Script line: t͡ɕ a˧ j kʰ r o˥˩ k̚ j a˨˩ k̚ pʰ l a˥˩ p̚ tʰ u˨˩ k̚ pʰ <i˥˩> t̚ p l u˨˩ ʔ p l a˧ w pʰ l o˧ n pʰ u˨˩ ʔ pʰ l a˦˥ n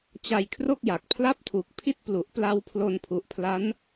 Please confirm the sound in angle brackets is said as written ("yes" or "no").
yes